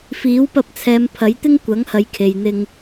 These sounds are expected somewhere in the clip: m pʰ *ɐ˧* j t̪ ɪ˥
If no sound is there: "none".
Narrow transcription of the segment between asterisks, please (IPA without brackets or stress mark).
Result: ɐ˨˥